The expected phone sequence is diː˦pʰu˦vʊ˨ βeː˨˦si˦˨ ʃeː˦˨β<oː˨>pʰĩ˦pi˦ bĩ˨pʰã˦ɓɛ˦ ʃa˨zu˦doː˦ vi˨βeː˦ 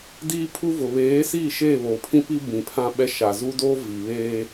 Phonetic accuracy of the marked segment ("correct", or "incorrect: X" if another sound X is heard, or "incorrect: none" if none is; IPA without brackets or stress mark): correct